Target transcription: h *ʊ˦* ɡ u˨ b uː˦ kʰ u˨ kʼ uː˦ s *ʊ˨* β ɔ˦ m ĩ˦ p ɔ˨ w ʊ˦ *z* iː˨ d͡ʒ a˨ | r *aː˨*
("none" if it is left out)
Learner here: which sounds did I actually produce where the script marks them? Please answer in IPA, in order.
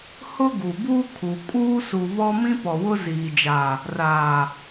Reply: ʊ˦, u˨, z, aː˨

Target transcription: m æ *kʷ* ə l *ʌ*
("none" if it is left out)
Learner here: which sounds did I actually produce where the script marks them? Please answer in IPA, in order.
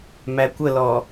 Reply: kʷ, ɔ

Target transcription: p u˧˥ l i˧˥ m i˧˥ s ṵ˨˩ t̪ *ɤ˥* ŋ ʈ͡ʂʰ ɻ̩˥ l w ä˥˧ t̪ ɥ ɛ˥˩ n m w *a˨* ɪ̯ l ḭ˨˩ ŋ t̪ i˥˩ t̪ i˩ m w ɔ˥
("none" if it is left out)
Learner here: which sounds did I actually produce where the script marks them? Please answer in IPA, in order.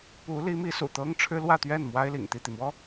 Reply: ɤ˥, a˥

